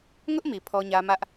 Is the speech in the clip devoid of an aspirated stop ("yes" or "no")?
no